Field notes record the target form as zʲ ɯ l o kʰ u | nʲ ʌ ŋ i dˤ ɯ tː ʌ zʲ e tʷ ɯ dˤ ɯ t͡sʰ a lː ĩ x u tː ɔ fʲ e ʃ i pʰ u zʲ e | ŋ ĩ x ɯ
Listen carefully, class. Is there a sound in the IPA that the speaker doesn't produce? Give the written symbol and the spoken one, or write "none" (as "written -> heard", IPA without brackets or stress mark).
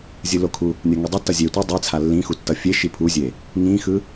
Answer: ɔ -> ʌ